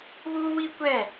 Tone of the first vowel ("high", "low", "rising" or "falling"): high